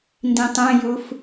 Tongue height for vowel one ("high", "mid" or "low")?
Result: high